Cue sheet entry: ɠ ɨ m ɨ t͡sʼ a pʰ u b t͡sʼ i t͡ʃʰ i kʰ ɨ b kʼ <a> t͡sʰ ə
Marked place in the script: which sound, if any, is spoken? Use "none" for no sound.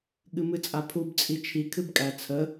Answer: æ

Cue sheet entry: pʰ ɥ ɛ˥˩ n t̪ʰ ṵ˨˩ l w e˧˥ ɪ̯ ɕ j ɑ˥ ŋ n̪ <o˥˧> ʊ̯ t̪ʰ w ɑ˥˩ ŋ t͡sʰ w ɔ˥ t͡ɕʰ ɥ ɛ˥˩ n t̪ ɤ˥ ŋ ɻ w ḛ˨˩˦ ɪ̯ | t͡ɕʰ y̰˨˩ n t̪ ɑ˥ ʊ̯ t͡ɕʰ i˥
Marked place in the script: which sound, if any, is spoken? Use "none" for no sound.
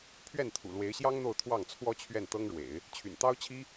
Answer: o˥˧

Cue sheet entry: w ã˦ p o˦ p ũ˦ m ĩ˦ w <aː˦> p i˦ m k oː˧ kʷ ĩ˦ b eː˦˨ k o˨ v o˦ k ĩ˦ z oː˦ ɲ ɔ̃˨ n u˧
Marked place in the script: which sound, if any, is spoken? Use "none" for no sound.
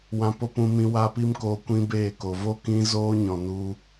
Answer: a˦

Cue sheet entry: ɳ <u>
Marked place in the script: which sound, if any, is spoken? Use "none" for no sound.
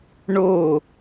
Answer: o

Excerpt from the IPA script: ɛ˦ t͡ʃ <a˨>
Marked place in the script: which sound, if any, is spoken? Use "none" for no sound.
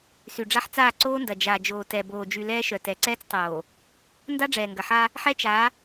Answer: a˨˦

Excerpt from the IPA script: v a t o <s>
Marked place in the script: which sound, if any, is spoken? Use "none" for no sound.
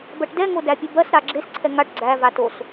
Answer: s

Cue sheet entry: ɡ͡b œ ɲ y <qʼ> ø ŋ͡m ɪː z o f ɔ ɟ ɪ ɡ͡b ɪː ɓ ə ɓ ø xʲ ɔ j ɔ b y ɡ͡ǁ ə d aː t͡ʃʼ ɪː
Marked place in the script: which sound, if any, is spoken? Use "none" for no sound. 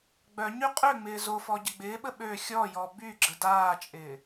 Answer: qʼ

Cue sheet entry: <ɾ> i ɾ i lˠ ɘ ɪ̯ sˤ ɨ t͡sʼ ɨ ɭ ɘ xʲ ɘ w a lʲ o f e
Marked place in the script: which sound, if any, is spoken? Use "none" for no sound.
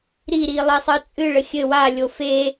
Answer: ɾ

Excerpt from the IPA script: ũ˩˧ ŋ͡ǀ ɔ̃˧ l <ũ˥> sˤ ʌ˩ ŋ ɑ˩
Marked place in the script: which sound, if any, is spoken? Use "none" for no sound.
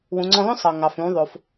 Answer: õ˥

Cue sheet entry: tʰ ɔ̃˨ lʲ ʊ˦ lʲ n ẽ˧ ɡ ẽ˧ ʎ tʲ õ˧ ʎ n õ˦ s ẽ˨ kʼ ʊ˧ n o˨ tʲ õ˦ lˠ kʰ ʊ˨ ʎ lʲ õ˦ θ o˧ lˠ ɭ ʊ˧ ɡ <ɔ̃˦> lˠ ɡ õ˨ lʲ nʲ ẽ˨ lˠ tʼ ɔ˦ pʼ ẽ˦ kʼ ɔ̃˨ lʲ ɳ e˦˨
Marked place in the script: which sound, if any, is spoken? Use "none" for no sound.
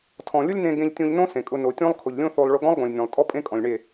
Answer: ɔ̃˦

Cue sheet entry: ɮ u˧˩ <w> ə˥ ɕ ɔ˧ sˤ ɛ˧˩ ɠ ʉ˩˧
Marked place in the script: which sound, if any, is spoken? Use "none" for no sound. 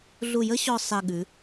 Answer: j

